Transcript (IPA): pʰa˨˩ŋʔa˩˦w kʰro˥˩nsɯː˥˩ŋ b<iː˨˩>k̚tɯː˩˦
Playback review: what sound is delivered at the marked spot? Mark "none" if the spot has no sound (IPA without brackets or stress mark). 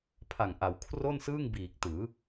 iː˨˩